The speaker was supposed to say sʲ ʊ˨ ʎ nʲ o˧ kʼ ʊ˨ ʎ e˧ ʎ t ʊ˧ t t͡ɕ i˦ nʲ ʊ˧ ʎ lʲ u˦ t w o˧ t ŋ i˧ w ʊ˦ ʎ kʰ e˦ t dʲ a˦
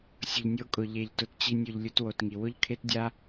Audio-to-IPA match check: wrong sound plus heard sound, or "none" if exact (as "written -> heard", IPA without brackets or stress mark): none